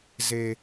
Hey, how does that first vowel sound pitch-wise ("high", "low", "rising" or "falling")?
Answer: low